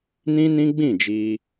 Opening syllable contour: high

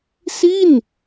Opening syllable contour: falling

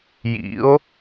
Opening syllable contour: rising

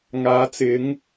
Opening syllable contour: rising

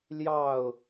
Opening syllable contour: falling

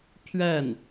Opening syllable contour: falling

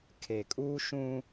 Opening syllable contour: low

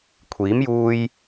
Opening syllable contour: rising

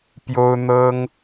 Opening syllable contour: high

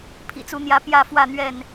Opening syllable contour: low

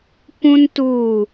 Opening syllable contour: high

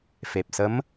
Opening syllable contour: low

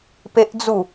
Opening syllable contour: high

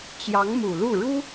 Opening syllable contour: rising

